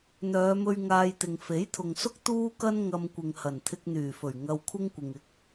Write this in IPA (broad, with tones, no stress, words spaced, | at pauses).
n̪œː˨˧mɵ˧ɥ ŋaː˧jt̪ɪ˨ŋ fe˨˥jt̪ʰʊ˨ŋsʊ˥k̚ t̪uː˥kɐ˥n ŋɐ˧mkʷɪ˨ŋhɐ˨˩n t̪ʰɪ˧k̚n̪yː˨˩fɵ˨˩ɥ ŋɐ˧wkʷʰɪ˥ŋkʷɪ˨ŋ ɪ˨˥k̚